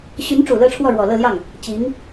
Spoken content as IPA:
ɕ y˧˥ n ʈ͡ʂ u˨˩ l ɤ˥˧ ʈ͡ʂʰ w ɔ˥˩ ɻ w ɔ˨˩ l ɤ˥˧ l j ɑ˥˩ ŋ | t͡ɕ i˧˥ ŋ

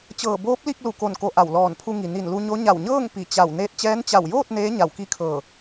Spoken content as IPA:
t͡ɕ ɤː˧˩ b oː˧˥ p̚ l i˥˨ k̚ l u˧˩ k o˧˩ n k o˧˩ ʔ a˧˩ w l ɔː˧˩ n pʰ u˧ ŋ i˩ n i˧˩ n l u˧ ɲ o˧˥ ɲ a˧˩ w ɲ ɤː˥˨ ŋ p i˧˩ t͡ɕ a˧˩ w n eː˧ t̚ t͡ɕ ɛː˧˥ n t͡ɕ a˧˩ w j oː˥˨ t̚ n eː˧˥ ɲ a˧˩ w k i˥˨ kʰ ɤː˧˩

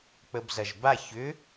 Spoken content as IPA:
k͡p ə b z ɐ ʒ b a ç ʏ

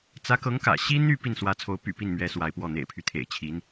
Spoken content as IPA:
t͡s ä˧˥ k ɤ˧˥ ŋ k ä̰˨˩ ɕ i˥ n̪ y˥˧ p i˥˩ n s w ä˧˥ t͡sʰ o˧˥ ʊ̯ p y̰˨˩ p i˥˩ n m ɥ ɛ˧˥ s w a˧˥ ɪ̯ p w ɔ˥˩ n̪ ḛ˨˩ ɪ̯ pʰ y˦ t̪ʰ ḛ˨˩ ɪ̯ t͡ɕʰ i˧˥ n

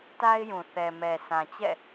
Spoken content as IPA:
t a˦ ɪ̯ j ũ˨ θ ɛ˨ m ɛ˨ s ã˨ t͡ɕ ɛ̰˦˨

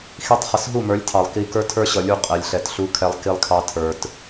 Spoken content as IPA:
x i˧ tˤ χ ə˨ s ɦ u˦˨ m ə˞˨˦ lʲ tʰ ɑ˨ lˠ k i˧ k ə˞˦ tʰ ə˞˦ ɕ ʌ˨ lʲ u˦˨ qʼ ɛ˨ lʲ ɬ ɛ˨ t ɬ u˧ kʰ ɛ˧ lˠ k i˧ lˠ kʰ ɑ˧ tʰ ə˞˨ t

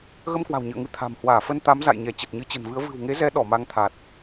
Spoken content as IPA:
ɣ ə˧ m k w a̤˨˩ w ɲ ɨ̰˧˨ ə̯ ŋ ɨ˨˦ t̪ʰ a̤˨˩ m h w aː˧˩ f ə˧ n t̪ a˨˦ m z a̰˧˨ j ɲ ɛ˧˩ t͡ɕ ə˨˩ t̚ ɲ ɨ˨˦ t͡ɕ ə̤˨˩ n v ɨ˨˦ ə̯ v ɨ̤˨˩ w ŋ e˨˦ z ɛ˨˦ ɗ ɔ˧˩ m a˧ ŋ t̪ʰ a˨˩ t̚

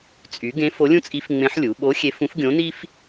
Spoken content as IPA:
t͡sʼ y˩˧ ɡ ẽ˧˥ f o˧˥ lʲ ũ˥ t͡sʼ i˧˥ f ŋ͡m ẽ˧˥ ħ lʲ u˩˧ ɓ o˧˥ xʲ e˧˥ f ũ˧˥ f ɡʲ õ˧˥ n i˥ f

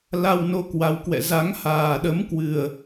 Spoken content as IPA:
l a˧ w n o˧ k w a˨˦ w k w ɛ̰˧˨ z a˨˦ ŋ h aː˨˩ ɗ ə˨˦ m k w ɨ˨˩ ə̯

